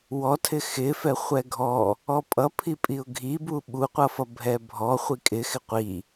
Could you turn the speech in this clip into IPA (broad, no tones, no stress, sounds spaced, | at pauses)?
w ɔ tʰ ɪ x ɪ f ɛ χʷ ɛ ɡʱ ɔ | ɔ pʼ ʌ pʰ i pʼ i ʊ̯ ɡʱ i b u ɓ u qʷ ʌ f ʌ bʱ ɛ bʱ ɔ χʷ i kʼ ɪ x ɪ qʷ i